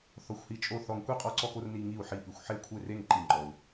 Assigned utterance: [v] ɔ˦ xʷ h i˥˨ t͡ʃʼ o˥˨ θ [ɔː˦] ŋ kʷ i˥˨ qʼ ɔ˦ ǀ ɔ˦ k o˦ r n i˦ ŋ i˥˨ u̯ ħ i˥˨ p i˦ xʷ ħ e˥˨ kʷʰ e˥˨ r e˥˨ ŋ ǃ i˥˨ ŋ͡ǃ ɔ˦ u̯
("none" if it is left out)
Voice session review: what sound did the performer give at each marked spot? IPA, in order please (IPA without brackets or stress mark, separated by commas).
θ, ɔ˦